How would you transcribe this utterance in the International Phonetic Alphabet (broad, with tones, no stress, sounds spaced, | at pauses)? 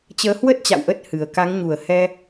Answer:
t͡ɕ əː˨˦ h w ə˦˥ t̚ t͡ɕ a̰˧˨ w ʔ ə˦˥ t̚ h ɨ˨˩ ə̯ k a˨˦ ŋ ɲ u˨˩ ə̯ h ɛ˧